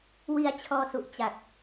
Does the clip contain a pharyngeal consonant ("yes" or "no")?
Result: no